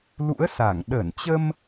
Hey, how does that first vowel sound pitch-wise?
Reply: rising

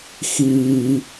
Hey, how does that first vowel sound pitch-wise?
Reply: low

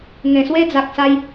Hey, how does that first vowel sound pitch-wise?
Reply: low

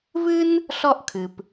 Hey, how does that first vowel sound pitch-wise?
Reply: high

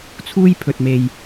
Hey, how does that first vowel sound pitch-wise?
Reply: high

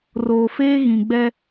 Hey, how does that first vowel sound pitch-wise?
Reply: low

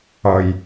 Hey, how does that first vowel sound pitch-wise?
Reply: low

